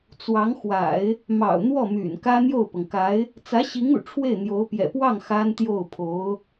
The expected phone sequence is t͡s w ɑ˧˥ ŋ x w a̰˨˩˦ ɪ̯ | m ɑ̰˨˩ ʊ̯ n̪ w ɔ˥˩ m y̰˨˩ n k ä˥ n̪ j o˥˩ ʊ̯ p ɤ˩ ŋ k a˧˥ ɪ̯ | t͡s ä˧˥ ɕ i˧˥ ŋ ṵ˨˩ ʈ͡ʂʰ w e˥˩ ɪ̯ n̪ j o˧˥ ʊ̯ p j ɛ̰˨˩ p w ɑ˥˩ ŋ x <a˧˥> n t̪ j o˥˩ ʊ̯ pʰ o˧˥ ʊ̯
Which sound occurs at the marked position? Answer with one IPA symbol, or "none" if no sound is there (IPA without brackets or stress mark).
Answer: a˥